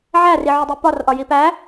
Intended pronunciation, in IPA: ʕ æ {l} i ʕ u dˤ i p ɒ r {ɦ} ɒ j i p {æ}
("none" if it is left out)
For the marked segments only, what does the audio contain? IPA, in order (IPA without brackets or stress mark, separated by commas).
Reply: r, ʔ, æ